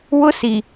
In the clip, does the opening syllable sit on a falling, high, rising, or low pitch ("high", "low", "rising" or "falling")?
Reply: high